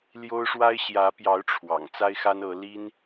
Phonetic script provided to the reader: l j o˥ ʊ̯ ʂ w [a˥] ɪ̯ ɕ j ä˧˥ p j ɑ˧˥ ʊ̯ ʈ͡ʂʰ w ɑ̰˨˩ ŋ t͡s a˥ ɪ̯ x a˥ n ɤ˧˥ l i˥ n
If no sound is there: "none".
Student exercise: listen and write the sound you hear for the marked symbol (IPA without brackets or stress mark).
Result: a˥